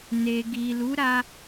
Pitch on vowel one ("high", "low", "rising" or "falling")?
low